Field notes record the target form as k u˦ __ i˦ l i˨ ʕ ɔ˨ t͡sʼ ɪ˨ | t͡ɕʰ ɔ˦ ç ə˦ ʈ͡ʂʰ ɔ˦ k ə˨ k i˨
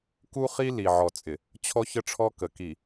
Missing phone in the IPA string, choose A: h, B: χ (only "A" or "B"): B